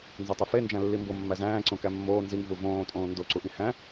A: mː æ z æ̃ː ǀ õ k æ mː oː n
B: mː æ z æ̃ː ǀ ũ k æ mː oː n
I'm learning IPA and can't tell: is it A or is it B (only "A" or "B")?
A